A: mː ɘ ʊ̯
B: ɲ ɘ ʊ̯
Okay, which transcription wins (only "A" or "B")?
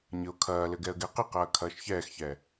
B